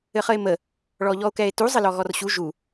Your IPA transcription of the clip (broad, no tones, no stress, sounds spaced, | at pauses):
ɘ χ ə e̯ m ə | ɭ ɔ ʎ ɔ o̯ k ɛ e̯ t u zˤ ɘ l ɔ ɣ ɔ r ɕ u ʒ u